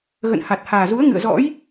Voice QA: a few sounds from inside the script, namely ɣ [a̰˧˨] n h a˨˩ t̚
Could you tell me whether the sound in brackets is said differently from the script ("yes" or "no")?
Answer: yes